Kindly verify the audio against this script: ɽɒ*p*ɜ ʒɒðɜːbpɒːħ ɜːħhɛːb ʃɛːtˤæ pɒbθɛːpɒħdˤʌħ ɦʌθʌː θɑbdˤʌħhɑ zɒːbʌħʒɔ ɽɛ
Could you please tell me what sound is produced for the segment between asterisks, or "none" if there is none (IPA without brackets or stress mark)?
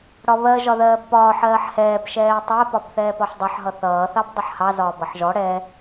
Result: β